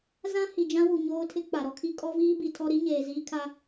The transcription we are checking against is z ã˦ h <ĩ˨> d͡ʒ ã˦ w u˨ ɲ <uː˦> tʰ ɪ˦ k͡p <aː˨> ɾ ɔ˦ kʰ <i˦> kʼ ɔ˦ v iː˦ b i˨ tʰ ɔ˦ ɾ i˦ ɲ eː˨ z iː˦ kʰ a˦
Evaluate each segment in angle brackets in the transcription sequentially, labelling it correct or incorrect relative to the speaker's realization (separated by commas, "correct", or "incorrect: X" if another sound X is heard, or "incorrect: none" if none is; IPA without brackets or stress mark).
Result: incorrect: i˨, incorrect: oː˦, incorrect: a˨, correct